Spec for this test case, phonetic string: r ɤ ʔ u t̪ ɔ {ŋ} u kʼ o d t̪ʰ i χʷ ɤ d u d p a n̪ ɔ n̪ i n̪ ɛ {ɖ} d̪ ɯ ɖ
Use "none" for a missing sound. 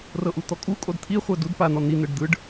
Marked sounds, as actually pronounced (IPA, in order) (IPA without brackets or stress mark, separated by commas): kʼ, ɖ